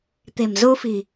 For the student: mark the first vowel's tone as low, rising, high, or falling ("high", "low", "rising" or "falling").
low